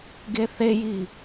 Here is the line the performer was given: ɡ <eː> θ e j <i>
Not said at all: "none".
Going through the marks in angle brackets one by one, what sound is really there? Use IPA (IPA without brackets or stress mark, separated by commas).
e, i